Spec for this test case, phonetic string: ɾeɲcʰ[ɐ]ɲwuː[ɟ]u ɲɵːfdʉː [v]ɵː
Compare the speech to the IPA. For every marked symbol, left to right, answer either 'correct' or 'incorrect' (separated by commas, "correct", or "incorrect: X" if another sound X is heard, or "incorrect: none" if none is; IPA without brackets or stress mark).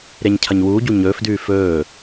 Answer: correct, correct, incorrect: f